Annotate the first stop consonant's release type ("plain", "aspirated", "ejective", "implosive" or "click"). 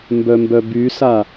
plain